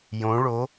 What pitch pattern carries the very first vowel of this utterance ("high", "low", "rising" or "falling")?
rising